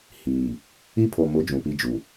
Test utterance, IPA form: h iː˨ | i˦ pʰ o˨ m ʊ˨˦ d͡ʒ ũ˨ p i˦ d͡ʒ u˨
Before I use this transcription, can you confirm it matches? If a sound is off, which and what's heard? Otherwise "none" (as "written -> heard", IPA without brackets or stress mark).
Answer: none